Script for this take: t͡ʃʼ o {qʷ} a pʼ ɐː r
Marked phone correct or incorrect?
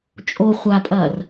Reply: incorrect: χʷ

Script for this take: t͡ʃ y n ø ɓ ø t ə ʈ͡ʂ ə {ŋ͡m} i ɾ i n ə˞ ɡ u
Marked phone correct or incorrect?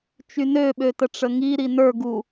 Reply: incorrect: ŋ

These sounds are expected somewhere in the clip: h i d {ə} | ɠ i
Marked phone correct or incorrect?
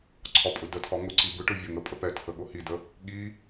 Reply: correct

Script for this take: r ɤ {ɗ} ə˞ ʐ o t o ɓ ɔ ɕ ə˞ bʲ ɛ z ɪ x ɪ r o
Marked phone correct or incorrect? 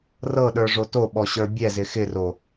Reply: correct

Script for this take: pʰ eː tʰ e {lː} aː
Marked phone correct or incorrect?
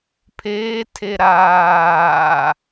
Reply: incorrect: ɾ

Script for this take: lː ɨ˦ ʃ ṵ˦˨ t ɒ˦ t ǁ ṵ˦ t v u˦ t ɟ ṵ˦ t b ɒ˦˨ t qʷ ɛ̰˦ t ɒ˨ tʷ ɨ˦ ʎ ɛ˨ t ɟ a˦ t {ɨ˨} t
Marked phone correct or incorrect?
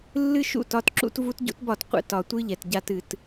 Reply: correct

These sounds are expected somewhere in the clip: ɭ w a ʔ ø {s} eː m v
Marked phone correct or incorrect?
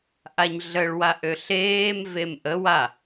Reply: incorrect: ɬ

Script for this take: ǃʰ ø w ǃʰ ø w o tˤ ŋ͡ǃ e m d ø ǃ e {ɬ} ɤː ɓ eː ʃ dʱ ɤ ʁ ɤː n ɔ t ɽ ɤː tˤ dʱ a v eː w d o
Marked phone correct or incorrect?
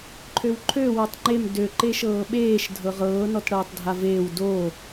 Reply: incorrect: ʃ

